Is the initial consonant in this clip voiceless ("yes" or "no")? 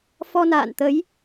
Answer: yes